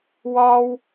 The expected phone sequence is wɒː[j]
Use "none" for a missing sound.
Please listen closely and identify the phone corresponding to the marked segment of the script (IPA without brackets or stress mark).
w